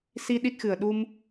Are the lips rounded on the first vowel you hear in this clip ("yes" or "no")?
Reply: no